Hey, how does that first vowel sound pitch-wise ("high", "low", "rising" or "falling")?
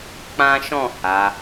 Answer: high